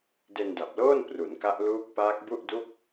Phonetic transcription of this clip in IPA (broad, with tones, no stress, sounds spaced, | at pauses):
d e˧ n d a˨˩ p̚ l oː˥˩ n p r u˩˦ n k a˦˥ ʔ l uː˦˥ k̚ p aː˦˥ k̚ b u˥˩ ʔ d u˥˩ k̚